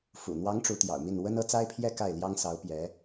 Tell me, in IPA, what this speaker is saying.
fṵ˨˩n̪wɑ˧˥ŋ ʈ͡ʂu˧˥t̪jɑ̰˨˩ʊ̯mi˥˩n wə˥nɤ˧˥t͡sa˥ɪ̯pʰjɛ˥˧ ka˥˩ɪ̯ljɑ˥ŋsɑ˧˥ʊ̯ pjɛ˧˥

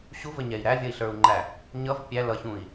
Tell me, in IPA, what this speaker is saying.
ɕuvəɲɛi̯ ɾævʲʌi̯ɬə˞u̯ŋ͡ǃæ | ɲʌv pʲæ lʌçũi̯

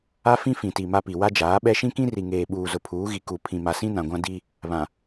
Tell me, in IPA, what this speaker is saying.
a˦fĩ˦fĩ˨ti˨ ma˦pi˨ wa˦d͡ʒaː˨˦ɓɛ˦ ʃĩ˦kĩ˦ri˨ŋeː˨ ɓuː˨zʊ˨pʰuː˨˦ɣi˨ ku˨ pʰĩ˨ma˨sĩ˦ nã˨ɡʷã˦ di˦ | βã˨

